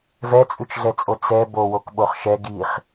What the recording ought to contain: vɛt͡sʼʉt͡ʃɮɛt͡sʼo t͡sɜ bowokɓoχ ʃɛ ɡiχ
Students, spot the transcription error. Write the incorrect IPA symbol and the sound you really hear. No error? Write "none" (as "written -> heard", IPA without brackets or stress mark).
ɜ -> ɛ